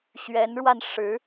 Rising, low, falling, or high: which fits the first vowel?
rising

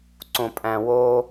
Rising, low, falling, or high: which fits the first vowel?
low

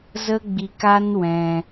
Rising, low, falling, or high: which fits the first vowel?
high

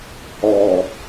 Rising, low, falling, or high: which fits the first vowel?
low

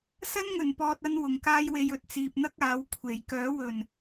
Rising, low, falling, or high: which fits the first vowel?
high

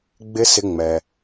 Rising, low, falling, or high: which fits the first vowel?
high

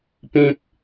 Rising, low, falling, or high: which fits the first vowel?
high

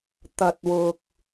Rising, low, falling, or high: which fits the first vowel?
low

